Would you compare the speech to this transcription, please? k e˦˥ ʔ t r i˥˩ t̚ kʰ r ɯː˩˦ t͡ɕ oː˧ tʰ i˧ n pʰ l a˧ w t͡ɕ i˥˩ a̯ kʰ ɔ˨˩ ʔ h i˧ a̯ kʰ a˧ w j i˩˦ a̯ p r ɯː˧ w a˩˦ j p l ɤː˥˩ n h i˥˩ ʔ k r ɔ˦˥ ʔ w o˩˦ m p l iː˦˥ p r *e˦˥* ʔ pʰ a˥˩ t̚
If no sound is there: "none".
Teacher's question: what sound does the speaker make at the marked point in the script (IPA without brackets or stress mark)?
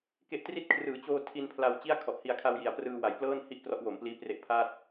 e˦˥